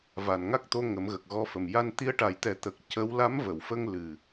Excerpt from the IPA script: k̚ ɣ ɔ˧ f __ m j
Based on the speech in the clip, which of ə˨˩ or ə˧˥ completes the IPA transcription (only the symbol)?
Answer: ə˨˩